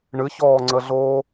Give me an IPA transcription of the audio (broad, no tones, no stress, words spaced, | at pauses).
ɳɨçɔːŋ͡ǀəɮoː